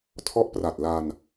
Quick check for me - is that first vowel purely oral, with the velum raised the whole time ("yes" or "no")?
yes